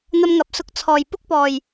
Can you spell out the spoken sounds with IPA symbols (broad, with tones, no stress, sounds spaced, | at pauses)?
n̪ ɐ˧ m ŋ ɐ˨ p̚ s ʊ˧ k̚ t͡sʰ ɔː˨˩ j p ʊ˥ k̚ p ɔː˨˩ j